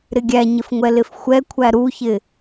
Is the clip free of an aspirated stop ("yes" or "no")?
no